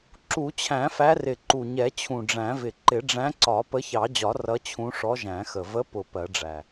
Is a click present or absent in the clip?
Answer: present